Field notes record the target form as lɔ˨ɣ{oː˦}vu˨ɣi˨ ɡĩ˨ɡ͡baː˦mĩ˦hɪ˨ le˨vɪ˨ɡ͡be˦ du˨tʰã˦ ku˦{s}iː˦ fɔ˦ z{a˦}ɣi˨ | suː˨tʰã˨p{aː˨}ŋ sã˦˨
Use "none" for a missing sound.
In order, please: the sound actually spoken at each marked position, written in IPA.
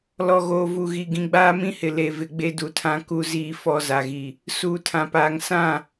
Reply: oː˨, z, a˨, aː˨

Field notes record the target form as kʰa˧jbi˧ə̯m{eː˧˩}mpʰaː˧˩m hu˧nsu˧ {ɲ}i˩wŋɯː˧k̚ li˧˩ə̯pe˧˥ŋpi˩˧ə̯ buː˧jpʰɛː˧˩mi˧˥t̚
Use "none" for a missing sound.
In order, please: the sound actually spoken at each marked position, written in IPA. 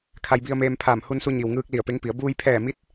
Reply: eː˧, ɲ

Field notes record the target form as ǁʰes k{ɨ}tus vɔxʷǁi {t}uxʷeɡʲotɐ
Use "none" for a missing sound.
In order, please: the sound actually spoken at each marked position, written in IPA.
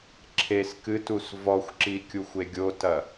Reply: ɨ, kʲ

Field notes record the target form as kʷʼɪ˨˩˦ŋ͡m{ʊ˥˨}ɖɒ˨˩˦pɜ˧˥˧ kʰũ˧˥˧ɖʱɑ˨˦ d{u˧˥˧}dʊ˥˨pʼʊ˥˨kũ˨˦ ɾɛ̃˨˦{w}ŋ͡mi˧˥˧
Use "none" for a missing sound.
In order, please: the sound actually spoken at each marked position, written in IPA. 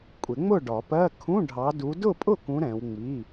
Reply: ʊ˥˨, u˨˦, w

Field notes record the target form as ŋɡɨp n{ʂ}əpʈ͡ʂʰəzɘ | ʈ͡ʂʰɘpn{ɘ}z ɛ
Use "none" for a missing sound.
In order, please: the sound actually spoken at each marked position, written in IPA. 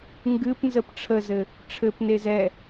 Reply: z, e

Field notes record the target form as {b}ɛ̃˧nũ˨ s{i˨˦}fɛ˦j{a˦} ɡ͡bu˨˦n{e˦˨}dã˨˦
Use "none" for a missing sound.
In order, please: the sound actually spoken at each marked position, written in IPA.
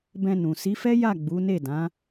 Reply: b, i˨˦, a˦˨, e˦˨

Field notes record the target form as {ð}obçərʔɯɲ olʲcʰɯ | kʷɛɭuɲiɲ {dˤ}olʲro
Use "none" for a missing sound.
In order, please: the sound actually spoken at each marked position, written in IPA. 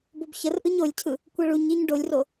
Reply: b, ɖ

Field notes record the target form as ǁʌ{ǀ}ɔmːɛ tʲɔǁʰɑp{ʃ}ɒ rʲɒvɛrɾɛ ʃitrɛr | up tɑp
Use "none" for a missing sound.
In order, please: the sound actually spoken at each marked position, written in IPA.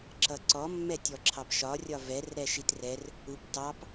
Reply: ǀ, ʃ

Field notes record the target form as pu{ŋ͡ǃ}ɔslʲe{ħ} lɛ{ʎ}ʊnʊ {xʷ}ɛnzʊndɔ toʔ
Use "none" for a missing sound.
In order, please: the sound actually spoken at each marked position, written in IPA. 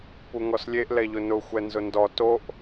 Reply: ŋ, ʔ, ʎ, xʷ

